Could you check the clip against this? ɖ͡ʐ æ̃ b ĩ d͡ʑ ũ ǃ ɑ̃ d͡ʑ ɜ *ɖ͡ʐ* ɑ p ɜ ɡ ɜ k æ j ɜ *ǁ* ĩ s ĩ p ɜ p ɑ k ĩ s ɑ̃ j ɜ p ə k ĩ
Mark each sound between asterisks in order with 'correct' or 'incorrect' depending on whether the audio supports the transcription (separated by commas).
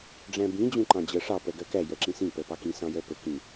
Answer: incorrect, correct